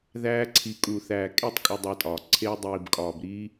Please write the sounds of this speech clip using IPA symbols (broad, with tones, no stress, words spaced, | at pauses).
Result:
ðæː˧ ǀʰi˨kʼu˨θæː˨ kʼe˦˨tˤ kʼu˧dˤæ˧tʼɒː˨ ǀʰe˧y̯dˤiː˨bkʼɒː˨bɾiː˦